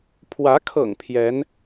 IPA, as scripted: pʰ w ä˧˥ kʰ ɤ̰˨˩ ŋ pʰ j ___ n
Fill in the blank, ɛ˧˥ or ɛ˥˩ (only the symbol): ɛ˧˥